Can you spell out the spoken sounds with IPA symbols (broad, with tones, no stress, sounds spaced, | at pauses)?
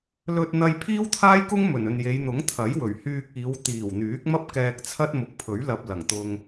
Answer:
l ɵ˧ t̚ n̪ ɐ˧ j pʰ iː˥ w t̪ʰ aː˥ j k ʊ˥ ŋ m ɵ˨˩ n ɵ˨ n j e˨˧ j n̪ ʊ˨˥ ŋ t̪ʰ ɐ˨˥ j w ɵ˨˩ ɥ h yː˧ k̚ iː˨˧ w t̪ iː˨˩ w n̪ yː˨˥ k̚ m ɐ˥ p̚ k ɛː˧ k̚ t͡sʰ ɐ˥ t̚ m ʊ˨˥ k̚ pʰ ɵ˨˥ ɥ l ɐ˧ p̚ l ɐ˨˩ ŋ t̪ ʊ˧ ŋ